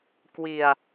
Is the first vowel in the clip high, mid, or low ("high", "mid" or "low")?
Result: high